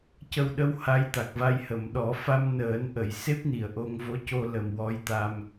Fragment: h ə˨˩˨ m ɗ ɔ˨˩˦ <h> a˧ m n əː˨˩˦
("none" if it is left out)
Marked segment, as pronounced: f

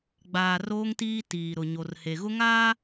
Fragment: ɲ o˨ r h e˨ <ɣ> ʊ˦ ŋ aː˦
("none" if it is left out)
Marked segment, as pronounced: ɣ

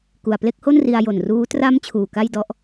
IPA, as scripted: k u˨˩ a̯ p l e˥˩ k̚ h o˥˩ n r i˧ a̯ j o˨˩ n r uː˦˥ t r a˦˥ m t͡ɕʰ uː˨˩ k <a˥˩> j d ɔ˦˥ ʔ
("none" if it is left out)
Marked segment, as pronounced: a˥˩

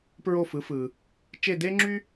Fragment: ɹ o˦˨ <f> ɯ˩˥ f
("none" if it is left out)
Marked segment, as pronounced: f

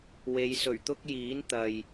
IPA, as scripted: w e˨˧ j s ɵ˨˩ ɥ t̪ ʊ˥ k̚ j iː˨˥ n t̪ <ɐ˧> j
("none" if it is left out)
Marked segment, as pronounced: ɐ˨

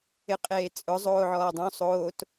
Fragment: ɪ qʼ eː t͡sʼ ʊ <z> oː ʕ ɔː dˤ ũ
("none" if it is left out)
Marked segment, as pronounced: zˤ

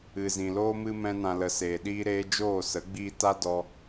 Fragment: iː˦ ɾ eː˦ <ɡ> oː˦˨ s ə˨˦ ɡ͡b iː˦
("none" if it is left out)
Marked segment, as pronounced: d͡ʒ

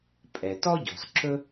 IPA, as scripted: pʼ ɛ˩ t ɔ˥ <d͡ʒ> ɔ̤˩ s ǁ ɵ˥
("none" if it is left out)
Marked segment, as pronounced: ɟ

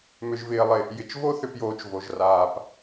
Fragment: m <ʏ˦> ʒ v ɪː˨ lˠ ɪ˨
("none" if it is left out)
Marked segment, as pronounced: ʏ˨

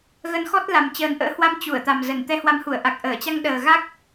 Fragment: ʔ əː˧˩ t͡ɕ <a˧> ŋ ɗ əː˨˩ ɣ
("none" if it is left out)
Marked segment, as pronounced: a˧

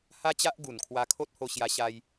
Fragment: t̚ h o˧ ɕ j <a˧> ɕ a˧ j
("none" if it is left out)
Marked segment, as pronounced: a˧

